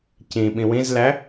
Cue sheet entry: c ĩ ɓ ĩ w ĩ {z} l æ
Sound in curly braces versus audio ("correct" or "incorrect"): correct